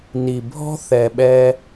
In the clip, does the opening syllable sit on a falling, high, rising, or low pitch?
low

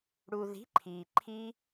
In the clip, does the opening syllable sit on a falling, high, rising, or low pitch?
low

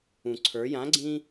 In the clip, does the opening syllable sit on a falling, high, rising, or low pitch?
low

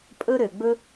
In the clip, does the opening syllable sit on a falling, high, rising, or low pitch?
high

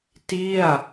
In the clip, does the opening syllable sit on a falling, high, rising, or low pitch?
falling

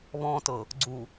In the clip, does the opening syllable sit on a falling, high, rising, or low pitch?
low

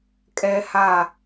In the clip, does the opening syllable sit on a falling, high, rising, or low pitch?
high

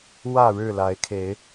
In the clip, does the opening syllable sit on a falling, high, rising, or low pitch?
falling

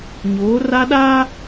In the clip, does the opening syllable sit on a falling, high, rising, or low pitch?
rising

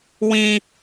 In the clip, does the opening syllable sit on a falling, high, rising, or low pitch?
high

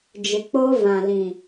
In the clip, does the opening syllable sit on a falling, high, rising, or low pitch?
low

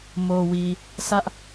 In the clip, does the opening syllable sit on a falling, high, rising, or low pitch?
low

